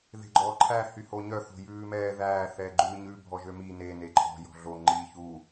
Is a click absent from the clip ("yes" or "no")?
no